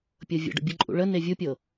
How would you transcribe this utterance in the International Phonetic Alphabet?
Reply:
pʲɤvʲə̰ɖə̰bʲɤ ǃʼṵɭəne vʲupʲɤ

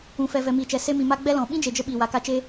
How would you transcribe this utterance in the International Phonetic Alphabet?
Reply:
ũ˨fɛ˨vɛ˨ miː˨t͡ʃɛ˨ se˧mĩ˨ma˧ ɡ͡bɛ˦lɔ̃˨ ɓĩ˦d͡ʒe˨d͡ʒə˧ ɓiː˨wa˨ka˧t͡ʃeː˦

